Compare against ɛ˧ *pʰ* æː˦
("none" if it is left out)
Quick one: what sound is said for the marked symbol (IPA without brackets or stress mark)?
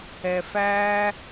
f